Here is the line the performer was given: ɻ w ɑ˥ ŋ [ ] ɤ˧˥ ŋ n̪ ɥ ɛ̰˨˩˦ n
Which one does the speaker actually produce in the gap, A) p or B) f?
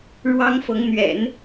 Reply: B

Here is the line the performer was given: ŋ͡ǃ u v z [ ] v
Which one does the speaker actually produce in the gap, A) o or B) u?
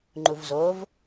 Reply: A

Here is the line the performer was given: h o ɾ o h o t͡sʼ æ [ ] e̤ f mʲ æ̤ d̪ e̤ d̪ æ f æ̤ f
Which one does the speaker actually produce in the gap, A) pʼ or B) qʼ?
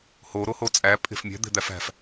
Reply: A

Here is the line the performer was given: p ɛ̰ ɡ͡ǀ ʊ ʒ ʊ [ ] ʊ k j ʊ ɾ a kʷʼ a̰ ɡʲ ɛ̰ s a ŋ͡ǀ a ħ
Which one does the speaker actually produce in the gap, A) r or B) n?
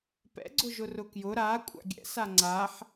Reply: A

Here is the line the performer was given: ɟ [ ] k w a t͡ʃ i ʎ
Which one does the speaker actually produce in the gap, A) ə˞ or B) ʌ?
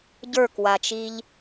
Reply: A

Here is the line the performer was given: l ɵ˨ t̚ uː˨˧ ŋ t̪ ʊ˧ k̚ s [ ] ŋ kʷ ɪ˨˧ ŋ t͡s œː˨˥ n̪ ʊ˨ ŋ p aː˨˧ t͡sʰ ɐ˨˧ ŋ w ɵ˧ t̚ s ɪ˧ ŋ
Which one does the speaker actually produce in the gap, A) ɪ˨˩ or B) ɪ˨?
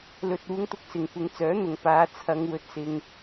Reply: B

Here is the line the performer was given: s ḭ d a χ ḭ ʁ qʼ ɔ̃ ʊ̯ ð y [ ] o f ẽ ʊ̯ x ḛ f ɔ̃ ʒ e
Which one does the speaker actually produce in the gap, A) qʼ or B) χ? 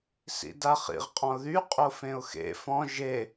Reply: A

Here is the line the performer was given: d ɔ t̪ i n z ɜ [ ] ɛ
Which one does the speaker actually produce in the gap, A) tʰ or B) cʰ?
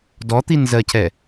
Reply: B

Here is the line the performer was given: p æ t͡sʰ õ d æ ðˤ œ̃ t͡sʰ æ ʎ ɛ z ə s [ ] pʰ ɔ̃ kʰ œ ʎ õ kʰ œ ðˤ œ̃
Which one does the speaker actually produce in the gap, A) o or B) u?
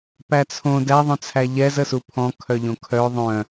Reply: B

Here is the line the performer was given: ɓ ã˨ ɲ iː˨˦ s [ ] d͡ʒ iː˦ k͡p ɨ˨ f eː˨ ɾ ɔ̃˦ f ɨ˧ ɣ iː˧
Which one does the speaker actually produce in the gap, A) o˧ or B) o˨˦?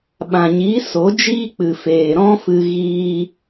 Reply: B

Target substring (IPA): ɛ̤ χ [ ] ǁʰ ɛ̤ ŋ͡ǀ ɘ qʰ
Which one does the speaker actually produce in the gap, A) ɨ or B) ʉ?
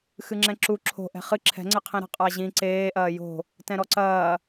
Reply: A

